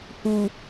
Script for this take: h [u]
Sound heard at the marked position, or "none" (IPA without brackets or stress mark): u